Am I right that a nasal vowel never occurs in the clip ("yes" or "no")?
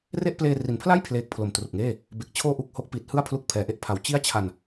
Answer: yes